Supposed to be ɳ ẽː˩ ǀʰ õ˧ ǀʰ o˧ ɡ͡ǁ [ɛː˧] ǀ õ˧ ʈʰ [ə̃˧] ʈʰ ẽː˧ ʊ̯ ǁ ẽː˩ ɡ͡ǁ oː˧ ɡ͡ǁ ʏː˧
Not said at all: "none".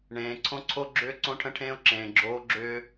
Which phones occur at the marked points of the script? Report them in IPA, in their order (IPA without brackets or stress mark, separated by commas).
ʏː˧, ə̃˧